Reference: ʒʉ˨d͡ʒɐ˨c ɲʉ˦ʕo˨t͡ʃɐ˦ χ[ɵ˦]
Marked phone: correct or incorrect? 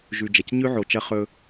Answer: correct